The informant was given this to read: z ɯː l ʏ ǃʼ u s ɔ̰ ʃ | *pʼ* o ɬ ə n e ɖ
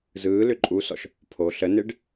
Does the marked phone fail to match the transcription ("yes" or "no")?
yes